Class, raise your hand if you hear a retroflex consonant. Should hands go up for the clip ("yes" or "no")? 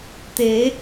no